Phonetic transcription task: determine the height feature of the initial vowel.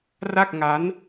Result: low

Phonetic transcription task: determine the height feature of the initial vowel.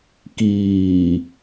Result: high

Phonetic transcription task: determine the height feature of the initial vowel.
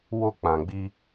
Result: mid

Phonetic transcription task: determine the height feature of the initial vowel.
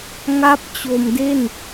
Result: low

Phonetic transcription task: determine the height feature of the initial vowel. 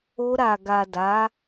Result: mid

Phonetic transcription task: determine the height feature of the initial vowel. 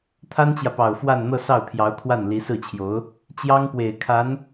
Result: low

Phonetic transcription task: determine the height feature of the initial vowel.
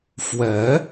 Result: mid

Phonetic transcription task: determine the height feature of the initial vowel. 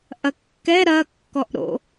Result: low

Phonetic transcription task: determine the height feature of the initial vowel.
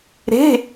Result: mid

